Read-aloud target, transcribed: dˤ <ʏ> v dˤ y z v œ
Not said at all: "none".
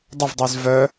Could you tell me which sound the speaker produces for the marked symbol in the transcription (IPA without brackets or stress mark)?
ə